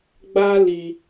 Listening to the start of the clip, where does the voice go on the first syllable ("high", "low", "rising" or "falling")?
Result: high